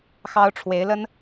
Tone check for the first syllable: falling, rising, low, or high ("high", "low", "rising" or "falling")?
high